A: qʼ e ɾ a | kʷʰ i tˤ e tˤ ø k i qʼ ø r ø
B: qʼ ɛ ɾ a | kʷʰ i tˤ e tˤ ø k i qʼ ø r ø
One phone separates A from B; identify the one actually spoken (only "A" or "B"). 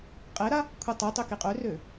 A